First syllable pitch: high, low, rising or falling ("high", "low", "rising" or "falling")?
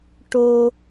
high